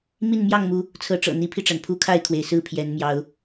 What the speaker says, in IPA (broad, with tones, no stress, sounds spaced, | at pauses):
m i˥˨ n m j ɑ˥˨ ŋ m u˨˦ | t͡sʰ ɤ˨˦ ʈ͡ʂ ɤ̰˨˩ n̪ i˨˦ pʰ i˧ ʈ͡ʂ a˩ n pʰ u˥˨ kʰ a˥˨ ɪ̯ kʰ w e˩ ɪ̯ s ɹ̩˥˨ pʰ j ɛ˨˦ n m j ɑ˨˦ ʊ̯